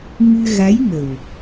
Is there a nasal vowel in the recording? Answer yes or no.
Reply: no